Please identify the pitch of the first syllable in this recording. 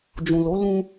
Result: low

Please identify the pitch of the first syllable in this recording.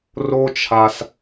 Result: high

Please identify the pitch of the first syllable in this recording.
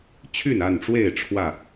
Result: falling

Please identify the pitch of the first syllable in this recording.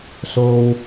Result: low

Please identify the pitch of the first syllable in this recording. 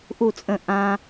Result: falling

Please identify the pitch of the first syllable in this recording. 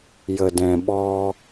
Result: low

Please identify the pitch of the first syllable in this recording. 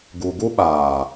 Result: low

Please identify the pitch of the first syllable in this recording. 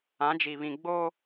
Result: rising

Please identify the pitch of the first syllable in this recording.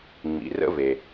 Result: low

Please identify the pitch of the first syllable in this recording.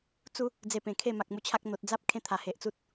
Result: high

